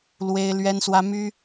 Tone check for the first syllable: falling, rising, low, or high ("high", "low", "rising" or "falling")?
high